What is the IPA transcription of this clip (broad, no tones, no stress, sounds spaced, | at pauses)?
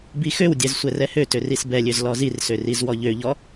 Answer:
b i x ø w dʲ ɛ z sʷ ɛ r ɛ h ø t ø r i s b ɛ lʲ ø z l ɔ z i r s ø r i z w ɔ ʎ ø ʎ ɔ